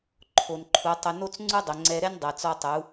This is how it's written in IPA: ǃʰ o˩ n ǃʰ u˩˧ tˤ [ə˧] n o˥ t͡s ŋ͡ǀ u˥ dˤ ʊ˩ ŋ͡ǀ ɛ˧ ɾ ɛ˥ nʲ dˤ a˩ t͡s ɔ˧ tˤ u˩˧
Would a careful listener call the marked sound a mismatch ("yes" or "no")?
yes